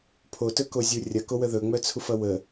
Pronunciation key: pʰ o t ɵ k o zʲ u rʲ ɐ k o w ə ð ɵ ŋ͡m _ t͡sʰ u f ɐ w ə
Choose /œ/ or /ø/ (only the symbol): œ